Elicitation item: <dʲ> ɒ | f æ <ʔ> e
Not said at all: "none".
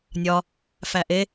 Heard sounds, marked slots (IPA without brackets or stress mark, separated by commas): nʲ, ʔ